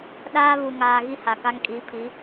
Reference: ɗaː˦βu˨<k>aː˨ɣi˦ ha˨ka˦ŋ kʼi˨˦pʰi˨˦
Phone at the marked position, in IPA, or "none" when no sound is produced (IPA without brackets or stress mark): ŋ